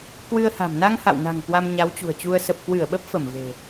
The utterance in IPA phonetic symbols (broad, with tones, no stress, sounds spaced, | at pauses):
k w ɨ˧ ə̯ h a̤˨˩ m n a˧ ŋ h a̰˧˨ w n a̤˨˩ ŋ k w a˧ m ɲ a˨˦ w t͡ɕ ṳ˨˩ ə̯ t͡ɕ u˧ ə̯ s ə˨˩ p̚ k w ɨ˧˩ ə̯ ɓ ə˦˥ p̚ f ə˧˩ m v e̤˨˩